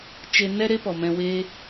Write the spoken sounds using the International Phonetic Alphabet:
t͡ʃ e˧ n ɛ˦ ɾ e˦ p ɔ˨ m ɛ̃˧ w eː˦

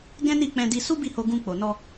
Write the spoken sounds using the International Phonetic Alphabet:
ɡ ɛ̃˦ n i˦˨ k͡p ɛ̃˧ d i˧ s u˦ b i˦˨ h o˧ ɡ ũ˧ k͡p o˨ n ɔ˧

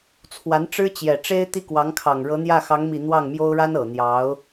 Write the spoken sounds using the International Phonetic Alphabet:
t͡sʰ w a˧˥ n ʈ͡ʂ ɻ̩˥ t͡ɕ j ɛ˨˩ ʈ͡ʂ e˥ ɪ̯ t̪ i˥˩ k w ɑ˧˥ ŋ kʰ ɑ˨˩ ŋ ɻ ɤ˧˥ n̪ j ä˥˩ x ɑ˧˥ ŋ m i˨˩ n̪ w ɑ˥˩ ŋ m j o˥ ʊ̯ ɻ a˥ n ɤ˨˩ n̪ j ɑ˧˥ ʊ̯

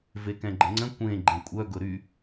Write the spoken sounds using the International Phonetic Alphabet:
v e k ɛ̃ ɡ͡ǃ ə̃ ŋ͡ǀ ə̃ kʷ ẽ ɡ͡ǃ ẽ kʷʼ œ ɡ ʊ ɾ y

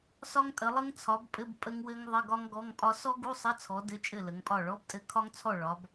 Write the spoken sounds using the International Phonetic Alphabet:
s ɒ˦˥ ŋ tʼ ə˨˦ lˠ ɘ˦˥ ŋ t͡sʰ ɒ˨˦ b pʼ ɘ˧˥˧ b pʼ ə˦˥ ŋ w ɘ˦˥ ŋ ðˤ ɘ˧˥˧ ɡ ɒ˦˥ ŋ ɡ ɔ˧˥˧ ŋ pʼ ɒ˦˥ s ɔ˦˥ ɡ u˧˥˧ sˤ ə˧˥˧ t͡sʰ ɔ˨˦ d ɘ˧˥˧ t͡ʃʼ ɘ˥˩ l ə˨˦ ŋ pʼ ɒ˥˩ ɭ ɔ˧˥˧ b tʼ ɘ˧˥˧ kʰ ɒ˦˥ ŋ t͡sʰ ɔ˥˩ ɭ ɒ˨˦ b

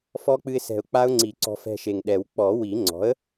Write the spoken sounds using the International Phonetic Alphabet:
f ɔ˦˥ k͡p ɨ˧ ɪ̯ s ɛ̤˨˩ ʊ̯ k͡p a˦˥ ʊ̯ ŋ͡ǀ i˨˩˦ ǀ ɔ̤˧ f ɛ̤˧ ʃ e˨˩ ŋ ɗ ɛ˨˩˦ w k͡p ɔ˨˩˦ w i˨˩˦ ŋ͡ǀ ɔ̤˩˥ ə̯

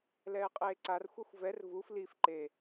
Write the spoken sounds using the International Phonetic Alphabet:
l ɛː qʼ eː ǀ a r xʷ a xʷ v ɛ r v u f l i f ǃ e

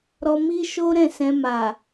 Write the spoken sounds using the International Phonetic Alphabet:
ɾ ɔ˧ m i˦ ʃ o˦ ɾ ɛ̃˦˨ s ɛ̃˧ m a˨

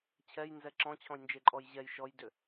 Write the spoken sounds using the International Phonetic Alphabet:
t͡ɕʰ ɛ j n z ɛ ǁ ɔ̃ t͡ɕʰ ɔ̃ j n d͡ʒ e ǃʼ ɔ j ʑ ɛ j ʃ ɔ j d ʏ

